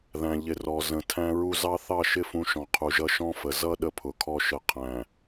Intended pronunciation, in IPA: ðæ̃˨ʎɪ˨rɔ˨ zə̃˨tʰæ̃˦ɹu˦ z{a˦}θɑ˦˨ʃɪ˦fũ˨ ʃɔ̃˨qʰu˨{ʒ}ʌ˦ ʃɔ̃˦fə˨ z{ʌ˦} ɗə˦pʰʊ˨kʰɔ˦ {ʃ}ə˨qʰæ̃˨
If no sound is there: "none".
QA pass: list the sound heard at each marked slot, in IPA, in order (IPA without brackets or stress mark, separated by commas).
ɑ˦, ʒ, ʌ˦, ʃ